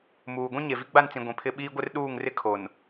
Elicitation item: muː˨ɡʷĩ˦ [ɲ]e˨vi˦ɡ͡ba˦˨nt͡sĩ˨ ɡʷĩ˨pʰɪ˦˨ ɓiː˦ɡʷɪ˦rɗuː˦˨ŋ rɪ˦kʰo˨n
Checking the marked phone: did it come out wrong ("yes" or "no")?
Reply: no